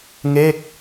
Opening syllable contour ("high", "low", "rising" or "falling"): falling